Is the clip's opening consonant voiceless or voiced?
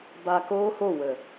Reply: voiced